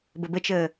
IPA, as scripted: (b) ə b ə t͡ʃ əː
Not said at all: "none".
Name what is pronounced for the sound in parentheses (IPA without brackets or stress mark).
b